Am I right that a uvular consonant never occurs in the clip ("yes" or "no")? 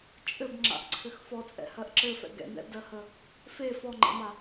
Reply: yes